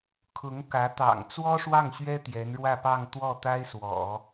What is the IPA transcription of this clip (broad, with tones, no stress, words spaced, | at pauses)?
kʰʊ˧˥ŋ kä˧˥ t̪ɑ̰˨˩ŋ t͡swɔ˥ʂwɑ˥˩ŋɕɥɛ˥ t̪jɛ˧˥nɻwä˥˧pɑ˥˧ŋ t̪wɔ˥˩t̪a˥ɪ̯swɔ̰˨˩˦